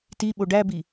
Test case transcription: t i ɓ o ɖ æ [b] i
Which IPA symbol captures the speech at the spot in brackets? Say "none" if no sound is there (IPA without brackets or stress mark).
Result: b